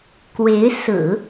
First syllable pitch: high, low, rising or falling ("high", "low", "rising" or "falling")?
rising